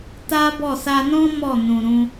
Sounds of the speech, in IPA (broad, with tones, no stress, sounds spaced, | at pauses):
t a˦ b ɔ˦˨ s a˧ n ɔ̃˦ m ɔ˦˨ n ũ˨ ɾ ũ˧